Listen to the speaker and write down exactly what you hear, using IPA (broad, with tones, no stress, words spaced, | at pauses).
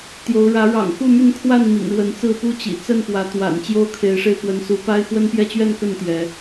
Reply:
t̪jo˨˦ʊ̯ɻä˨˦ ɻɑ̰˨˩ŋxu˥˨my˥˨nkʰwa˥˨n mḭ˨˩ŋɻwə˨˦nt͡sɹ̩˥˨ pu˥˨t͡ɕḭ˨˩ t͡sə˥˨npwä˨˦t̪wa̰˨˩n t͡ɕjo˦ʊ̯kʰe˨˦ɪ̯ʂe˧ɪ̯ pwə˨˦nsu˨˦pa˦ɪ̯ xwə˦npjɛ˦t͡ɕɥɛ˥˨nkə˥˨n t̪jɛ˨˦